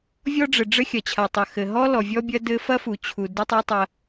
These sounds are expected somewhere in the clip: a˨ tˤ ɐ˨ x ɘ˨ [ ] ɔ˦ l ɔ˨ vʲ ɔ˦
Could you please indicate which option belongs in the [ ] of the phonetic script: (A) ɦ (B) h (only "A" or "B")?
A